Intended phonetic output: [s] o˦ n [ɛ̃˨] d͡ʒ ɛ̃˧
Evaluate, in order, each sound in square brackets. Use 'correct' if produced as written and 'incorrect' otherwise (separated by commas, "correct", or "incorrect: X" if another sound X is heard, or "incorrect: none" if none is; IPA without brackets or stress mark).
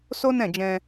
correct, incorrect: ɛ̃˦˨